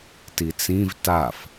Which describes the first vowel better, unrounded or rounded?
unrounded